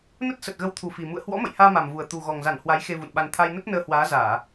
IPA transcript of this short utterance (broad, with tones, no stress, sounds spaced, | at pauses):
n ə˦˥ t̚ s ə˨˩ t̚ ɣ ə˨˦ w t̪ʰ u˨˩ f i˨˩ m ṵ˧˨ ə̯ h w ɔ̰˧˥ m ə̰˧˨ j h aː˧ m a˨˩ m v u˨˩ ə̯ t̪ u˨˩ ɣ ɔ˨˩ ŋ z a˧˩ n h w a˨˦ j x e˧ v ṵ˧˨ n ɓ a˧ n t̪ʰ a˧ j n ə˦˥ t̚ n əː˧ h w aː˨˦ z aː˧˩˨